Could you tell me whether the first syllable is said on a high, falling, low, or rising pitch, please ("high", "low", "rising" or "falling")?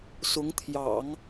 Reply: rising